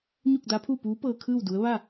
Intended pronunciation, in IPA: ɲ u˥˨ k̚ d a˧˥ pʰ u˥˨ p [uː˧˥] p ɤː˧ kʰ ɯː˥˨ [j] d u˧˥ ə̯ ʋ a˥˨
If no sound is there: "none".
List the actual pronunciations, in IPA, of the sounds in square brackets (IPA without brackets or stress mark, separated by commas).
uː˧˥, w